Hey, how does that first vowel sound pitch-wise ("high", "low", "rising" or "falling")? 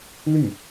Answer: falling